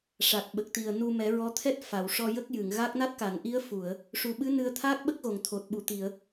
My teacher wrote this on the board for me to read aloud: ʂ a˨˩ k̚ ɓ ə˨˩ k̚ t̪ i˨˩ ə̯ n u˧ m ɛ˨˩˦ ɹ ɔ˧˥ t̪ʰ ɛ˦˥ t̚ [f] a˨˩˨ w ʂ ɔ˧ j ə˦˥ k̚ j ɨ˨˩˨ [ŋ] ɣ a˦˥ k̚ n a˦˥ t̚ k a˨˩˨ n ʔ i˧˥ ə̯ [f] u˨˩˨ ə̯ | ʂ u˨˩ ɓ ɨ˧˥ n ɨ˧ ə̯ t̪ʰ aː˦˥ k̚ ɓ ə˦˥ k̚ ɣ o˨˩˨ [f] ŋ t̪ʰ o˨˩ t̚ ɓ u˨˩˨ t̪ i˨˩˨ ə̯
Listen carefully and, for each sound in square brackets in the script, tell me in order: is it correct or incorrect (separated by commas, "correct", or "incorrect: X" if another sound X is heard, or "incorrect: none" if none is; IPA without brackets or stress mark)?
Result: correct, correct, correct, incorrect: none